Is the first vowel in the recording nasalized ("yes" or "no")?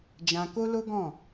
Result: yes